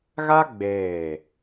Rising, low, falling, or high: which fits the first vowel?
high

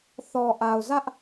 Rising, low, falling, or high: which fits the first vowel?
low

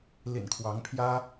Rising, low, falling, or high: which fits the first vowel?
low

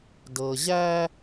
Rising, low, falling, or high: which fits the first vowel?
low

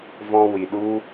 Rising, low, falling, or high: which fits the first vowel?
high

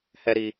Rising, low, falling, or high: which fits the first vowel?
high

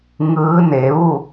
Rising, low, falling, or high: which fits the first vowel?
rising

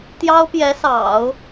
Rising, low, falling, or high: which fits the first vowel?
high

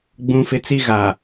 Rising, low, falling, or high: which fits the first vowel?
high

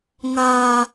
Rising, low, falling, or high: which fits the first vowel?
low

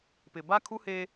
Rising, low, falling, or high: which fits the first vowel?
low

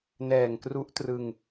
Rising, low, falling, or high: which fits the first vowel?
low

